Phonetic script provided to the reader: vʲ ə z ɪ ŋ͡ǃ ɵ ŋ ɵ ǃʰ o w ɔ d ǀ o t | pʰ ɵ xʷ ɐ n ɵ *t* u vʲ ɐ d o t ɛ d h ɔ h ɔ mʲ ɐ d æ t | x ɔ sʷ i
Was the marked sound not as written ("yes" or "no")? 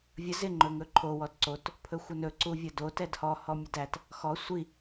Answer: yes